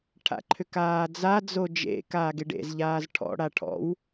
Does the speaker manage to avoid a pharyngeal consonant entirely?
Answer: yes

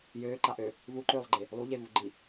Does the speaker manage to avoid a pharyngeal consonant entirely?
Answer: yes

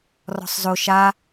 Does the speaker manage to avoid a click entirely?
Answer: yes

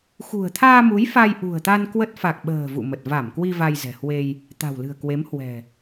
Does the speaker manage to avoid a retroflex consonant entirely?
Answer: yes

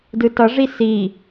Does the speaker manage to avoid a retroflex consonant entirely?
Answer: no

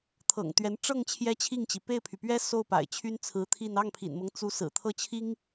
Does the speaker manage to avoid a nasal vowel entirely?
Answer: yes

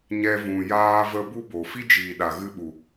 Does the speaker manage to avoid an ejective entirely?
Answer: yes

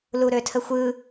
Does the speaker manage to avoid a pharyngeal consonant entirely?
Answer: yes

